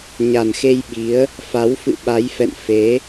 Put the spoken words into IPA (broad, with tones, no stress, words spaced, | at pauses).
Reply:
ɲa˨˩nxe˧j ɓi˨˦ə̯ | fa˨˦wfɨ̰˧˨ ɓa˨˦jfɛ̰˧˨n fe˨˦